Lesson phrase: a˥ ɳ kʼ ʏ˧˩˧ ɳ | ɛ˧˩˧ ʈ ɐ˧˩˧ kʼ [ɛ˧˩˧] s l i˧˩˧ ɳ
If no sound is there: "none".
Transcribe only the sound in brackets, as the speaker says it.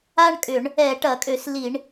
ø˧˩˧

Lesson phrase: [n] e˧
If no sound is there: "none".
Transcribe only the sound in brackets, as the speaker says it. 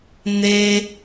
n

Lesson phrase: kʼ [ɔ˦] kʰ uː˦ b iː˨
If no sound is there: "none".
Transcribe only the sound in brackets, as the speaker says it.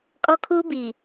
ɔ˦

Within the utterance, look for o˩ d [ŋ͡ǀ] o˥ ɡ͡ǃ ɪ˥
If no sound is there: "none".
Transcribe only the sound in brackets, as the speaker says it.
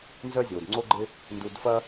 ŋ͡ǀ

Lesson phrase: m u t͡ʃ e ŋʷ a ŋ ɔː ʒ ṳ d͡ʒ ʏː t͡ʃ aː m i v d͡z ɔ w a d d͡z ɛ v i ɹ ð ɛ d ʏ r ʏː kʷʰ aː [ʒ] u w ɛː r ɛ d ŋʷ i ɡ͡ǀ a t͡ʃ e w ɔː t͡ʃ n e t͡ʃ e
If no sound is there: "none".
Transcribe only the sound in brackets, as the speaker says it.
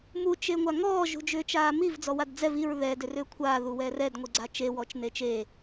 ð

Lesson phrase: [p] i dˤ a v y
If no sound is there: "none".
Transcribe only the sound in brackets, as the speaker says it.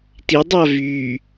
t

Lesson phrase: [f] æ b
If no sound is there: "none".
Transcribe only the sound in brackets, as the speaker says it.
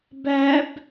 b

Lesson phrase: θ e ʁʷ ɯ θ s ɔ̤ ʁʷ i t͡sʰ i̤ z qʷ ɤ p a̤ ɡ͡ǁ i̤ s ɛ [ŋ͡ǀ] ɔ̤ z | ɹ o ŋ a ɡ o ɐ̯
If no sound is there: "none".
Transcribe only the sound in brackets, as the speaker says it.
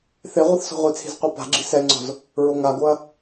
ŋ͡ǀ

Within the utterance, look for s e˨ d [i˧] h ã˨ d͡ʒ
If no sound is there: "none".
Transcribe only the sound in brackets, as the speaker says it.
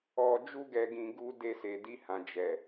i˧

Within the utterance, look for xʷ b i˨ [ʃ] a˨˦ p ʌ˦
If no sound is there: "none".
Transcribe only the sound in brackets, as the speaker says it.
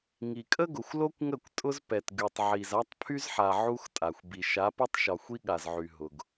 ʃ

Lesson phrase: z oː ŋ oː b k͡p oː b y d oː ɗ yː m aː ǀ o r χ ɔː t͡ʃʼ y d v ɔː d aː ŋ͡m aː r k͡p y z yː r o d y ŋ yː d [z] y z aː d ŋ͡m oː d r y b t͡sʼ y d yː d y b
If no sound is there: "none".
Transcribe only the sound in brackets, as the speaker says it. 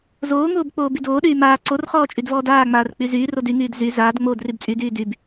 z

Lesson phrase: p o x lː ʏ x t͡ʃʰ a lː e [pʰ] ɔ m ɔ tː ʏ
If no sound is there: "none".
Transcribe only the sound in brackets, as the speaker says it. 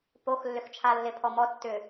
pʰ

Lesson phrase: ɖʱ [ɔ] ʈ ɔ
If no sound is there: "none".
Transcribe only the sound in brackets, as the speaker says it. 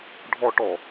ɔ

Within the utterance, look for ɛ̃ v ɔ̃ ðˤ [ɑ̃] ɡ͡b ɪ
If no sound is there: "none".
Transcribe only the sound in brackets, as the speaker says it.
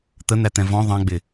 ɑ̃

